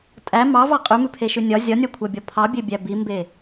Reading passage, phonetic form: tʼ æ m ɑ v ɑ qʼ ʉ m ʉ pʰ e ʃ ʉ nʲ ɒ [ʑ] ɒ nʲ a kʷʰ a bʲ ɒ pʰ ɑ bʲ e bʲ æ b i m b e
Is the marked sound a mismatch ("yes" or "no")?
yes